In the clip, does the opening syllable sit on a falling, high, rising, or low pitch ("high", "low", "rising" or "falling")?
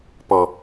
low